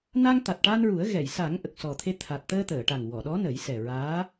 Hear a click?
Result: no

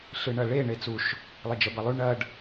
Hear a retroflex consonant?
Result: yes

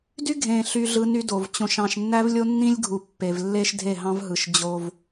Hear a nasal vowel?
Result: yes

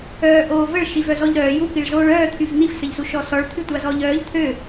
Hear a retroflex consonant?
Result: yes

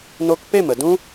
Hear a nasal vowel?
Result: yes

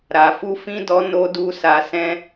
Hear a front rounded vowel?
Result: no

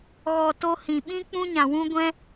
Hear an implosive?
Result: yes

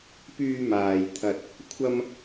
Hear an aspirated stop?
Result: yes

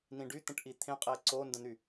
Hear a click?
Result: yes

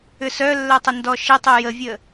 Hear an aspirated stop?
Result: no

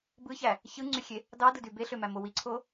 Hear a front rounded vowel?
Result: yes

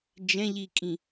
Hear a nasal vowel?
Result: yes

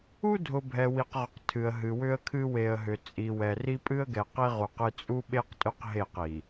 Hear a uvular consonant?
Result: yes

